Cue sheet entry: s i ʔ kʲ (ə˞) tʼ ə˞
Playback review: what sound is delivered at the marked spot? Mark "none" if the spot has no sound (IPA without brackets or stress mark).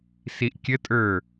ə